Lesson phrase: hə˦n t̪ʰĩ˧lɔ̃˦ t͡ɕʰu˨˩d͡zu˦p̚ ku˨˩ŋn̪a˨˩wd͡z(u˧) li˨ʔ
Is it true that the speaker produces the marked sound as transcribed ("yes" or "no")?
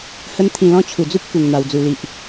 no